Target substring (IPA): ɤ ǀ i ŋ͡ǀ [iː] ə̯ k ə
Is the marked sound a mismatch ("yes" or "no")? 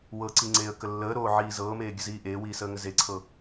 yes